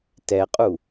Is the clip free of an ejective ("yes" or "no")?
no